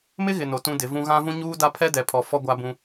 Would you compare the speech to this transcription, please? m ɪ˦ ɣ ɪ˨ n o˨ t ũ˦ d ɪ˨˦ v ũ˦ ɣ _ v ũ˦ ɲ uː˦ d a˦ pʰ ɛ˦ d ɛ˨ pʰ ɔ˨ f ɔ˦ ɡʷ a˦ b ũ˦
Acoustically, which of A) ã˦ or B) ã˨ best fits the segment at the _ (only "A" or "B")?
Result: A